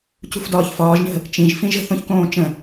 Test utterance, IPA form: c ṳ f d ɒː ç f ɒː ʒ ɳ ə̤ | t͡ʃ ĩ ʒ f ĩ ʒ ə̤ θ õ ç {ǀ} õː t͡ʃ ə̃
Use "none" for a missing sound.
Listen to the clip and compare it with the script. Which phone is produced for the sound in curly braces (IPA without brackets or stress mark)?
k